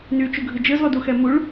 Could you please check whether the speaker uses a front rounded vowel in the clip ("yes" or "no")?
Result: yes